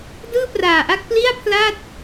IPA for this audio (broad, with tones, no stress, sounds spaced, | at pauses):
d ɯː˥˩ p r aː˨˩ ʔ a˥˩ k̚ p l i˥˩ a̯ pʰ l aː˥˩ t̚